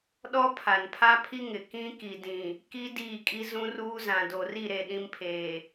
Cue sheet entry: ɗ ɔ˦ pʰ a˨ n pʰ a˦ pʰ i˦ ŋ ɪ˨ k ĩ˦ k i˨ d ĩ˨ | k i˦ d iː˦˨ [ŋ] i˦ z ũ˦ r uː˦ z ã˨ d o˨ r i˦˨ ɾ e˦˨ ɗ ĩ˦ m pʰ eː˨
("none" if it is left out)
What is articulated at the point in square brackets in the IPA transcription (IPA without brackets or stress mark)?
kʼ